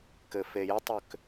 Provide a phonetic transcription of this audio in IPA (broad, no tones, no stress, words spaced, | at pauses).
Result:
kɘfejətˤʏk